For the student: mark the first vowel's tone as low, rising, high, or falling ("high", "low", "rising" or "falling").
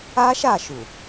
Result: high